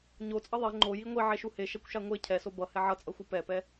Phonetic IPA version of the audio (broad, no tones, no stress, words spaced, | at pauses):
ɲot͡sʼʌ ðˤe ŋ͡ǃo jiŋʷi ʕeʃuhe ʃɛkʷʃaŋʷe cʰɛso bʌ hɛʕʌt͡sʼʌxʷɯ pɛpɛ